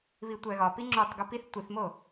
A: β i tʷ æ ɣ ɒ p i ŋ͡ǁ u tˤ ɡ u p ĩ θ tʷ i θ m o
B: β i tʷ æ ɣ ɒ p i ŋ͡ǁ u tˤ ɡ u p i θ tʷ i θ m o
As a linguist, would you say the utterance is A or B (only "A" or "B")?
B